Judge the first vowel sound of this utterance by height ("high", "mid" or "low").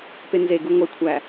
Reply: mid